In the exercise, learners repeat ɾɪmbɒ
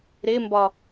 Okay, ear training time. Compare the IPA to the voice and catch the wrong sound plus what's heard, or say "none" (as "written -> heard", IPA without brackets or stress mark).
none